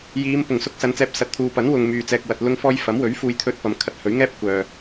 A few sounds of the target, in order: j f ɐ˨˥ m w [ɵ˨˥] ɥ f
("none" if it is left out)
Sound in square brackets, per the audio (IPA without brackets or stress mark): ɵ˨˥